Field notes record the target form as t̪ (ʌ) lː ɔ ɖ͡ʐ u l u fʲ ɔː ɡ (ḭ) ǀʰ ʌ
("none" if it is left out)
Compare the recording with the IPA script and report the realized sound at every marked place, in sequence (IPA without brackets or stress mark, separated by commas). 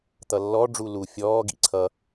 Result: ʌ, ḭ